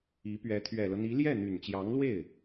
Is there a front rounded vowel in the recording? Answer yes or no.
yes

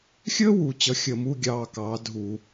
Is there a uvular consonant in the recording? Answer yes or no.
no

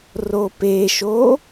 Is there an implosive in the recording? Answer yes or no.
no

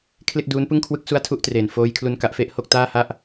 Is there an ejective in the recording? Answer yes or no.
no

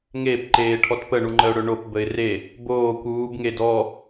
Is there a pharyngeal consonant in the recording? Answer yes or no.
no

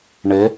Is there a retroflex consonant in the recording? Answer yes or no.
yes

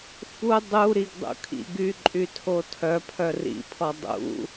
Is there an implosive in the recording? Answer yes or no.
no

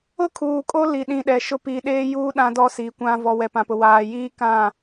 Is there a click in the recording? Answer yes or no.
no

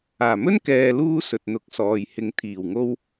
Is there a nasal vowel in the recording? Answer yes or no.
no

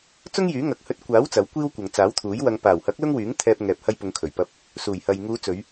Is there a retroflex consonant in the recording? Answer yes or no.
no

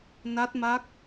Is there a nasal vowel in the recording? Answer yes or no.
no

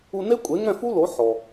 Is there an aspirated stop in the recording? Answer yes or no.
no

